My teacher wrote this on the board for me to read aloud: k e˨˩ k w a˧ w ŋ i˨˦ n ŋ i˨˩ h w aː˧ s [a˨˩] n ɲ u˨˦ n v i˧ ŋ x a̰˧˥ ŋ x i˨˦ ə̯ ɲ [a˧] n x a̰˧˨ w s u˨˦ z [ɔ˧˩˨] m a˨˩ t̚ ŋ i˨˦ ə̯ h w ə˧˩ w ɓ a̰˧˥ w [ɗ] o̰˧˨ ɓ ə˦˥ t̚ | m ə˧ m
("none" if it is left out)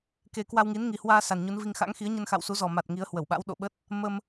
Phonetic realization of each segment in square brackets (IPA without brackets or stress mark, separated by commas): a˨˩, ə˧, ɔ˨˩, ɗ